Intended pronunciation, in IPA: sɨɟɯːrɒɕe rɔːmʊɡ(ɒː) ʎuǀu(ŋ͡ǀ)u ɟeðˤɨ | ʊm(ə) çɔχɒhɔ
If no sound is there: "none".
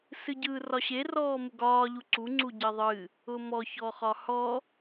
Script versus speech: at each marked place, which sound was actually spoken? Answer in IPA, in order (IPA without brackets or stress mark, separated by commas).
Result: ɒː, ŋ͡ǀ, ɔ